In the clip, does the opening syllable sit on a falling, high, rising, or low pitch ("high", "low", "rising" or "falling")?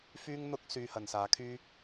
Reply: high